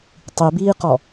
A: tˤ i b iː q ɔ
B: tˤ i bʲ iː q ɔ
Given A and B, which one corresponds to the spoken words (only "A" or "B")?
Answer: A